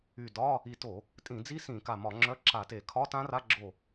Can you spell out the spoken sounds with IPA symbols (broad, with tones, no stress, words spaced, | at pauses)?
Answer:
y˧˩dɒ˧˥˧ | i˧˩to˧˩˧ | tʼĩ˧˩˧d͡zi˦˥ sĩ˧˩˧ka˧˩mɒ˧˩˧ ŋ͡ǁœ˧˥˧ǁa˧˩˧te˧˩˧ kʰɒ˧˥˧tã˦˥ra˧˥˧ ɡ͡ǁo˧˩